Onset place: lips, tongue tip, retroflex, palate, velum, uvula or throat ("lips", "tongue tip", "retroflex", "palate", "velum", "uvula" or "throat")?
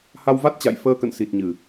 throat